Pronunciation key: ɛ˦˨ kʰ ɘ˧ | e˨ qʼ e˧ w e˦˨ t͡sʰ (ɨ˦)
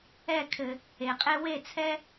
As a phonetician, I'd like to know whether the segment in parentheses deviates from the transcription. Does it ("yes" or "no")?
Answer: yes